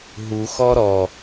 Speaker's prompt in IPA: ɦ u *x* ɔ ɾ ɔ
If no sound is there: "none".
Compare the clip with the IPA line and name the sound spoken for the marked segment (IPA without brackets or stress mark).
x